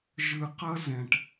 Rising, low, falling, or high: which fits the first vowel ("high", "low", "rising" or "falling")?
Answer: low